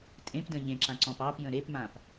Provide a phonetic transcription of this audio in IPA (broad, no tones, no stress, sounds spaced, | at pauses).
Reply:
tʼ ẽ p d ə̃ ʎ ẽ ǁ ã ǀ ɔ̃ p ɑ p j ə̃ ɾ e p m ã p